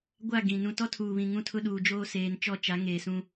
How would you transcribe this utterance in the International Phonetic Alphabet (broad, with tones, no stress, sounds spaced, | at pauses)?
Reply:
ɡʷ a˦˨ ɡ ĩ˨ n ũ˨ t ɔ˦ tʰ uː˨ β ĩ˨ ŋ ũ˦ tʰ ʊ˦ ɗ uː˨ d͡ʒ oː˦ s eː˨ n t͡ʃ ɔ˦˨ t͡ʃ a˨˦ ŋ eː˨ s ũ˦